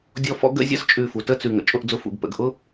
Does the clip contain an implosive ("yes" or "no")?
no